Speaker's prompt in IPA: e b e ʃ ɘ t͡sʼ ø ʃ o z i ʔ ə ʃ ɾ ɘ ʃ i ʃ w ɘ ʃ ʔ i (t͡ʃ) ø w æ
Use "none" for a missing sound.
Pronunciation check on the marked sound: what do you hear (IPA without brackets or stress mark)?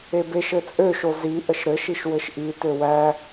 t